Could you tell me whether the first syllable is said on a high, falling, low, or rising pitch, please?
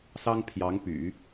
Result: high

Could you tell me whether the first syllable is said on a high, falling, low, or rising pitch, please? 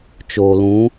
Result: low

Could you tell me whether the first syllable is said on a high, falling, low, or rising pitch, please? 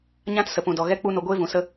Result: high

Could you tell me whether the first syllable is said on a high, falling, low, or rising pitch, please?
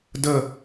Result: falling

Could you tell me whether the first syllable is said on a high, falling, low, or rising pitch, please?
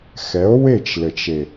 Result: rising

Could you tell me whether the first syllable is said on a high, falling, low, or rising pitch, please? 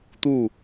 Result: falling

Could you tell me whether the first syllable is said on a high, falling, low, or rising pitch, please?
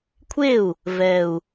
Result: falling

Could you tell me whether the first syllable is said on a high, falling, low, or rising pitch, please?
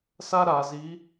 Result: high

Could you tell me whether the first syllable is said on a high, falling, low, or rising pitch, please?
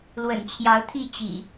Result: low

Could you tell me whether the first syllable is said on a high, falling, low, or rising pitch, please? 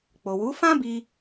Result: low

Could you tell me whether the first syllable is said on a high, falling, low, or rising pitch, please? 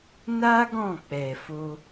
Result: high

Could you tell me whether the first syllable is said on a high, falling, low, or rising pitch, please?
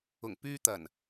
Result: low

